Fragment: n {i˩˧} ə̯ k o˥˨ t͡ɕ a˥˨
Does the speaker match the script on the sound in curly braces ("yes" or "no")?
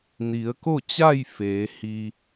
yes